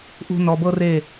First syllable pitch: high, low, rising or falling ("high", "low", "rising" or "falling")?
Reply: high